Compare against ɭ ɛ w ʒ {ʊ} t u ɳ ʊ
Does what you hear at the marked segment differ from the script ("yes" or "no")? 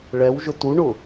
no